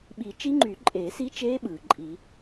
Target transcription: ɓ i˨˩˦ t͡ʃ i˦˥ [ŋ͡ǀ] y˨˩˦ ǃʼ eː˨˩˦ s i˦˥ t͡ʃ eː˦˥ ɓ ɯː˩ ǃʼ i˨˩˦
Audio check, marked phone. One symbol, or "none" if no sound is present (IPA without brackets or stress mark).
ŋ͡ǃ